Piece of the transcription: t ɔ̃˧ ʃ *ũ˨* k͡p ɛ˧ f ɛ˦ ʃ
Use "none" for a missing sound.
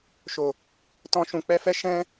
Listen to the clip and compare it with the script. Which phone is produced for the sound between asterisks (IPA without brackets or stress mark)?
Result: ũ˨